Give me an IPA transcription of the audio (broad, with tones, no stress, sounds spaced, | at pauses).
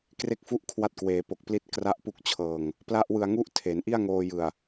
k r e˥˩ k̚ f u˥˩ ʔ kʰ w a˦˥ t̚ k w eː˩˦ p o˨˩ k̚ p l i˥˩ t̚ k r a˥˩ ʔ p u˥˩ k̚ t͡ɕʰ ɤː˧ ŋ | p l a˥˩ ʔ w ɯ˧ a̯ ŋ u˥˩ ʔ tʰ e˩˦ n ʔ i˥˩ a̯ ŋ oː˧ j ɯ˨˩ a̯